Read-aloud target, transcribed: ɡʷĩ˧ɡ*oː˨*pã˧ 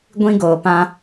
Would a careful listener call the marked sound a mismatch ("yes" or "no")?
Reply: no